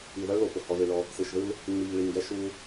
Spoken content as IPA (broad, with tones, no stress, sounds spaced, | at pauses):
i˨ ð ʌ˦ ɭ l o˨ p ʊ˨ h ɔ˨ ð ɨ˨ ɭ ɔ˦ | s ɯ˨ ʃ ð ɯ˦ l | ŋ͡m i˨ ʎ ɭ i˨ ŋ ɡ ɛ˦ ʃ u˦